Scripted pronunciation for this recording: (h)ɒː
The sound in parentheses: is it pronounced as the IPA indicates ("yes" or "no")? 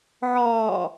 no